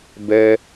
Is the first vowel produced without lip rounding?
yes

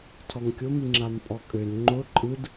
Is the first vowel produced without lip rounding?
no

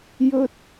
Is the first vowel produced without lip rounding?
no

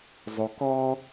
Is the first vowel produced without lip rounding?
no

